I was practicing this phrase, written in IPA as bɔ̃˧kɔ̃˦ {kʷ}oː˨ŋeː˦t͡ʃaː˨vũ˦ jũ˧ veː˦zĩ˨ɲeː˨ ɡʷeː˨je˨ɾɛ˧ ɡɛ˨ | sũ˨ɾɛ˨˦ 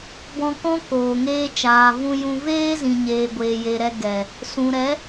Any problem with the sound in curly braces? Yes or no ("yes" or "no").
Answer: yes